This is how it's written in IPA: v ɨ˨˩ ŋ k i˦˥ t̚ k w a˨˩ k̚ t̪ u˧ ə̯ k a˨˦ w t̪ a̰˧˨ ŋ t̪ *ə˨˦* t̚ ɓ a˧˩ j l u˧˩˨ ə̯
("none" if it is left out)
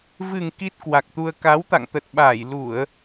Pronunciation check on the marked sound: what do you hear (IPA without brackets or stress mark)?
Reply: ə˨˩